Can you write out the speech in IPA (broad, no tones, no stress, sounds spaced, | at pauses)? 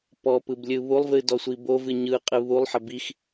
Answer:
p ɔ p ɯ b lʲ ɯ β u lˠ v ɨ d ɔ sʷ i b o v ɨ ɲ ɯ qʼ ɨ β u lˠ ħ ə b i x